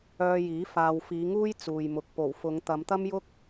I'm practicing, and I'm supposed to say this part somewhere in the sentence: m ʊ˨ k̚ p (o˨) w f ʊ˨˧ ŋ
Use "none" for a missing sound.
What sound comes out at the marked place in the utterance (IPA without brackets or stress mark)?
o˨˩